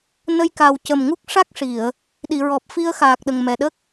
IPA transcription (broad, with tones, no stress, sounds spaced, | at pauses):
n ə˧ j k a˨˩ w c ə˨˩ m ŋ u˦˥ k̚ ʂ a˦˥ k̚ ʂ i˨˩˨ ə̯ | ɗ i˨˩˨ ɹ ɔ˨˩ p̚ f i˧ ə̯ x aː˨˩ k̚ ɗ ə˨˩ ŋ m ɛ˨˩ ɗ ə˦˥ k̚